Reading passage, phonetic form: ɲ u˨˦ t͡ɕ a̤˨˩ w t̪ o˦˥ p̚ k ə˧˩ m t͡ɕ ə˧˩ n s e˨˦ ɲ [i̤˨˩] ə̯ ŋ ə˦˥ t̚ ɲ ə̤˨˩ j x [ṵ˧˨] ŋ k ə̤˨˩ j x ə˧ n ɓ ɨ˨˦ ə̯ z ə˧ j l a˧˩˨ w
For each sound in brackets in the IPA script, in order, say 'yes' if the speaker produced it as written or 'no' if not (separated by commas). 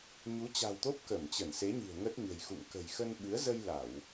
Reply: yes, yes